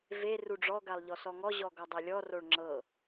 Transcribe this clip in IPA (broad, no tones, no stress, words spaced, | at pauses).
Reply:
ve ruɖ͡ʐɔ ɡalˠʎɔsɔŋɔ ʑɔɡɔdˤelʲɔ roɭŋ͡ǁɤ